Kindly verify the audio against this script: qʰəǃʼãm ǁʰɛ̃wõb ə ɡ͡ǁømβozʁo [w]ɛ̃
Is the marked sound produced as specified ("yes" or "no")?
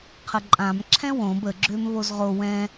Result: yes